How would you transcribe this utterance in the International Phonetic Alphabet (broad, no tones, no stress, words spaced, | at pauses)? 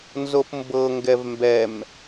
nzopmbɤ ŋɡɛvmbɛm